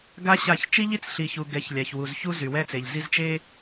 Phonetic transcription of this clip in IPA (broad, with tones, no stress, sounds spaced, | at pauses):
ɡ a˦ ɕ a˦˨ ç t͡ʃ i˦ ʎ i˦ t͡s ɬ i˨ ç u˨ ɡ ɛ˨˦ ç lʲ a˨ ç w u˨ z ç u˦ z y˨ w ɛ˦ t͡s e˨ ʎ z i˦ z t͡ʃ e˦